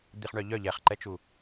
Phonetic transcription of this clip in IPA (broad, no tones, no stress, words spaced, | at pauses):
d̪iχɳœʎœ ʎɛχǃɛt͡ʃu